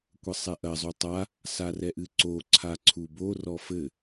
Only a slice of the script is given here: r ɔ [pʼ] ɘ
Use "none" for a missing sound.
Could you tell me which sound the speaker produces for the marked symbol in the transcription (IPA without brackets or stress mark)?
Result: f